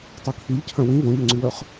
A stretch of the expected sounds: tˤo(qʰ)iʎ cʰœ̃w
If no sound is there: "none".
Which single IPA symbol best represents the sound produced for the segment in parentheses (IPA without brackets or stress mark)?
kʰ